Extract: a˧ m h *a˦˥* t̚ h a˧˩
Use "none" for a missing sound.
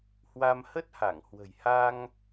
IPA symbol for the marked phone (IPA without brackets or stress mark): ə˦˥